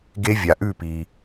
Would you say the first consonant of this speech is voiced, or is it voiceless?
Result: voiced